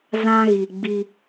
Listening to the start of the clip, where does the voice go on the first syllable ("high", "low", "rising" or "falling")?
high